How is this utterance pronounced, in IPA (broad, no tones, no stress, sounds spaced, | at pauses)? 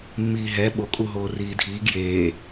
mː iː ɦ ɛ ɓ o kʼ u ɦ oː r iː dʱ iː ɡ j eː